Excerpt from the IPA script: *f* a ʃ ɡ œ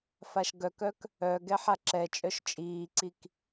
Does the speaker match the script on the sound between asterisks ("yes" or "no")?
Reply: yes